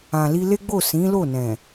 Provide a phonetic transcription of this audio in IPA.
ã˨li˧le˦ɡ͡bo˦˨ sĩ˨˦lo˦˨nɛ̃˨

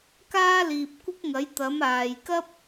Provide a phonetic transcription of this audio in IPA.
kaː˥liː˨p̚ kʷɪ˥k̚ŋɐ˨˥j t̪ɐ˨˥maː˨j kɐ˥p̚

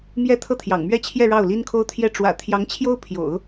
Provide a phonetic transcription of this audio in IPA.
mjɛ˧˥ t̪ʰɤ˥˩t̪ʰjɑ̰˨˩ŋmɥɛ˥t͡ɕʰjɛ˥˧ ɻɑ˥˩ʊ̯li˥nkʰo˥ʊ̯t̪ʰjɛ˥ ʈ͡ʂwä̰˨˩ t̪ʰjɑ˧˥ŋt͡ɕʰjo˥ʊ̯ pʰjo̰˨˩˦ʊ̯

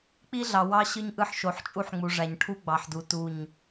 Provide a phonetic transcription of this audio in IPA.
k͡pi˦ɮɑ˨wɑ˦ ɕɯ˦ɲʔɯ˦ħ ʃo˨˦ħt͡ʃʼu˦ħŋ͡mu˨ʐæ˨ɲ ʈʰu˦ ɡ͡bɑ˨ħdu˨ tu˦˨ɲ

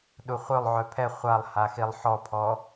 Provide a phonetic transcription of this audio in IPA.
ɗuχʷœlˠʕœ pʰɛ χʷalˠ haxilˠħɔpʰɔ

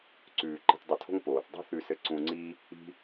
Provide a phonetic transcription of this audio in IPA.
ǀʉː˨ ǃi̤˧tdˤɘ˧tʰo̤˦ŋ poː˨θdˤṳ˦θʉ˧sɘ˧ ǀũ˧ŋ͡ǀi˦ | i̤˦

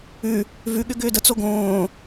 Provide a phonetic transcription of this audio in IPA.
ʉ | vʉɠʏ ɡʏːdət͡so ɡõː

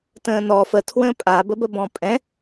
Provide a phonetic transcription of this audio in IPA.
tə̃ːnɔ fə tʰwə̃ːpʼabəbə bɔ̃pʼɛ̃

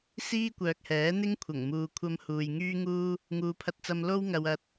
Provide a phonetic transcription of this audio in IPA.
siː˥kʷœː˨k̚hɛː˨˥n̪ɪ˥ŋ kʷʰɐ˨˩ŋmuː˧kʷʰɐ˥m huː˨jŋyː˥ŋuː˥ | ŋuː˨pʰɐ˧t̚t͡sɐ˧m lo˥wŋɐ˨w ɐ˧t̚

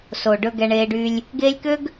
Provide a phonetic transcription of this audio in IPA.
so˨ɖɵ˧ ɡɛ˧ɳeː˧ɖy˧lʲ | ɡeː˦lʲ kø˦ɡ

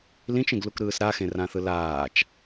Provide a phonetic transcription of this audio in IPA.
lĩt͡ʃẽɡlukɾɯːs ɾaxẽrãθɯ laːt͡ʃ

